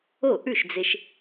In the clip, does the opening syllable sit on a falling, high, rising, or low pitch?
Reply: falling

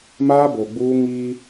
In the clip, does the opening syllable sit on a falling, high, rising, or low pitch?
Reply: high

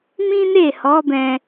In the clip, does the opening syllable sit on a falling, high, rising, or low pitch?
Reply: high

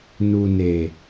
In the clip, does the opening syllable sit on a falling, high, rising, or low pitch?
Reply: low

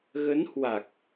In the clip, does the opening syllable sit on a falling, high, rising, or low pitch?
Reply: rising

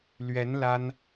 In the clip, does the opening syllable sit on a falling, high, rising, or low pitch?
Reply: rising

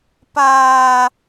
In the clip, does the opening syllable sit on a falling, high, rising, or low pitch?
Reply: high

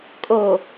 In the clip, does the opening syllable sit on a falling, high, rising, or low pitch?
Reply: low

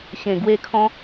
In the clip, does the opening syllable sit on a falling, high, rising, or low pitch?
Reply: low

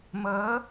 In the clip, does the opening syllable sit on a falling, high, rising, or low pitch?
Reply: rising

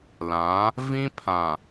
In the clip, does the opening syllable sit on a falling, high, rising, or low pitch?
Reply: rising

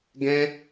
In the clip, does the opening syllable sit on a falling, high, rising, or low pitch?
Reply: high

